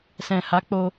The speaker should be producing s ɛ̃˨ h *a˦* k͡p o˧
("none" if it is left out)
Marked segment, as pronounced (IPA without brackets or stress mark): a˨˦